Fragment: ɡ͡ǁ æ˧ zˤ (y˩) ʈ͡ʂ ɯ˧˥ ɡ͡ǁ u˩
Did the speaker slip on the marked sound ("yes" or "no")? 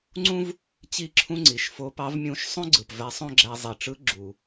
yes